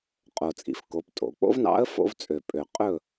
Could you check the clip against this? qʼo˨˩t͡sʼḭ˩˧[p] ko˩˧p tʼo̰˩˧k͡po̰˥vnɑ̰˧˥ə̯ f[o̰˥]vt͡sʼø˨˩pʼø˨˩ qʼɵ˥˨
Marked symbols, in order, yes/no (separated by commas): no, no